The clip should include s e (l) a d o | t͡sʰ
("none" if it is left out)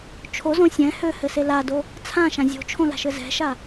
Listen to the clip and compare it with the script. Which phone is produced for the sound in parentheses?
l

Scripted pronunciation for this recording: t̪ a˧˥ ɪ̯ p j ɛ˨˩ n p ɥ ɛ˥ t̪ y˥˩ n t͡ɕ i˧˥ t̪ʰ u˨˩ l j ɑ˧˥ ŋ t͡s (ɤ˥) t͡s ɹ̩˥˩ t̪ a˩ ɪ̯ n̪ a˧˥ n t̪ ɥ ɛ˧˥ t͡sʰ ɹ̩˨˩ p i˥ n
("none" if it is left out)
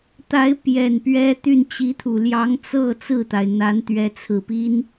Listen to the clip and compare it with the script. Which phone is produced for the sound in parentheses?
ɤ˥˧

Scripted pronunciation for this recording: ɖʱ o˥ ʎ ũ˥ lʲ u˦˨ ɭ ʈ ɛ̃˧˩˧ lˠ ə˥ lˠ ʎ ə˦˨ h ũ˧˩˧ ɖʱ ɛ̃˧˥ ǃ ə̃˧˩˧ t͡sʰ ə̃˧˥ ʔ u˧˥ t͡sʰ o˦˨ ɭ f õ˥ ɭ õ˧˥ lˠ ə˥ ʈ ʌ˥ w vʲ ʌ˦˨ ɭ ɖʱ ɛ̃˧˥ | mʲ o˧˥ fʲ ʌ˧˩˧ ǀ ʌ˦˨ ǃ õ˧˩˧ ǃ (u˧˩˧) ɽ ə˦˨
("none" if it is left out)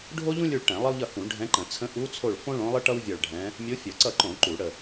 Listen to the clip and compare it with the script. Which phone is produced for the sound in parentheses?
u˧˩˧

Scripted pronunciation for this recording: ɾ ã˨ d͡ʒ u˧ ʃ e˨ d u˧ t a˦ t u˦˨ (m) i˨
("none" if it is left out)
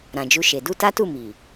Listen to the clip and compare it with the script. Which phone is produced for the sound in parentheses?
m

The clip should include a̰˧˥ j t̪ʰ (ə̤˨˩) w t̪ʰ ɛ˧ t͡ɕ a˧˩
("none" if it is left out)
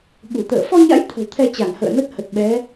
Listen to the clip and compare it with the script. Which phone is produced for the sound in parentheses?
ə̤˨˩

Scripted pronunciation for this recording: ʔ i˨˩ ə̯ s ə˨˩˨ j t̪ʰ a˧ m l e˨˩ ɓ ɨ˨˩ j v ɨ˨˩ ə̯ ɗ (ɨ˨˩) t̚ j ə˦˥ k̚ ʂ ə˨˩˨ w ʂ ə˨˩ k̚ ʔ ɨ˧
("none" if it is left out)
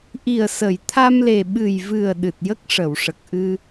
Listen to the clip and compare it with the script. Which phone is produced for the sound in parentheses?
ɨ˨˩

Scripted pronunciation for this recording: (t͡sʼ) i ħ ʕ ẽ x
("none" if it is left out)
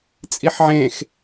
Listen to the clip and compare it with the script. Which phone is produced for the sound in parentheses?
t͡sʼ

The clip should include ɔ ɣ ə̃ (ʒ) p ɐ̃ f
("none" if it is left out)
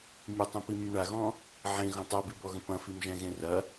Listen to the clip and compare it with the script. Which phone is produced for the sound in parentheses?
none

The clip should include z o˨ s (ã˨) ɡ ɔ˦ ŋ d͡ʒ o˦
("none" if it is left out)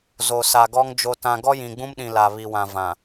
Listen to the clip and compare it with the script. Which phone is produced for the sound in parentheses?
a˨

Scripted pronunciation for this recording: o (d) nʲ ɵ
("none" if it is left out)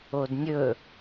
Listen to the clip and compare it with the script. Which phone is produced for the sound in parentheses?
d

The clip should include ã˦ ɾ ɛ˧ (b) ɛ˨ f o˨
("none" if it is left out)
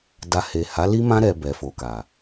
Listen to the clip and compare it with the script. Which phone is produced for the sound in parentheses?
b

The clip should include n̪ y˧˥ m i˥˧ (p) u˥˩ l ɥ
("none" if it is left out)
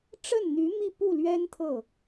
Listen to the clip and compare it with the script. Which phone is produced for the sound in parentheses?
p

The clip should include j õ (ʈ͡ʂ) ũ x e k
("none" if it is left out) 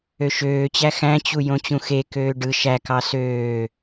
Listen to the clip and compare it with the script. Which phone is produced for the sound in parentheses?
t͡ɕ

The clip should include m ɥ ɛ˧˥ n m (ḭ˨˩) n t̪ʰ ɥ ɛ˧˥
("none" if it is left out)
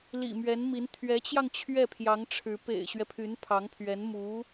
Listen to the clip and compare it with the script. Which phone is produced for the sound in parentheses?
i˧˥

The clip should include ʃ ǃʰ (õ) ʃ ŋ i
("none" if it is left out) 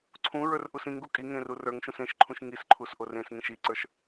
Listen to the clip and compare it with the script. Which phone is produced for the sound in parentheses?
ũ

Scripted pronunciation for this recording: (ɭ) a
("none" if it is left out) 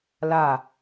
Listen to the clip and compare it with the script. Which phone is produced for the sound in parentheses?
l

